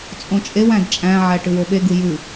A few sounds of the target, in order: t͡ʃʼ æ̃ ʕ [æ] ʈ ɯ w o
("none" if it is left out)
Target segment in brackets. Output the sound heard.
æ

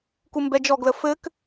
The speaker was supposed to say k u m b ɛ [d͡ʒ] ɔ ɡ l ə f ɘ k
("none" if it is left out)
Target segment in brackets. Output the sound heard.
d͡ʒ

